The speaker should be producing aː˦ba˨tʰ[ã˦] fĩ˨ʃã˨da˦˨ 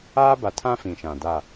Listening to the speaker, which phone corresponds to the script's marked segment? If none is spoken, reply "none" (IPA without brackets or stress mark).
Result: ã˦